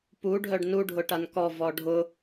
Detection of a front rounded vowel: present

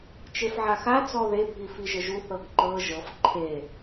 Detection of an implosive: absent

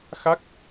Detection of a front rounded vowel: absent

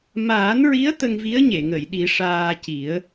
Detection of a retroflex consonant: present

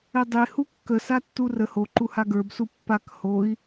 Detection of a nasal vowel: absent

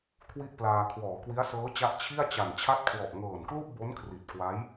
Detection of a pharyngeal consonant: absent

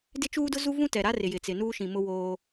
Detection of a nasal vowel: present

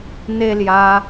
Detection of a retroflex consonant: absent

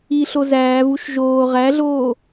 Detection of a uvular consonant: present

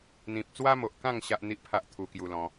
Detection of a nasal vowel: present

